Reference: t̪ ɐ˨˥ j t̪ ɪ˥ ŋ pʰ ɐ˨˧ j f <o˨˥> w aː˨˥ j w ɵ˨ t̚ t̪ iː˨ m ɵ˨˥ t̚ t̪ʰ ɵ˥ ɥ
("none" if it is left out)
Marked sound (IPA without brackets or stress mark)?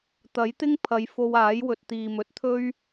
o˧